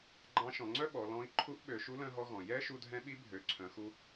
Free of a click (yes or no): no